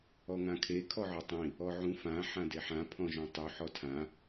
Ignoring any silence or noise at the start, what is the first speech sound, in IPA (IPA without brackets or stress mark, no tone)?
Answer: ɔ